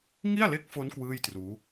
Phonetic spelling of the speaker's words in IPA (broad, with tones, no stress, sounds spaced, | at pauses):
ŋ i˥˩ a̯ l e˦˥ k̚ f o˦˥ n k w ɯː˥˩ j t r uː˦˥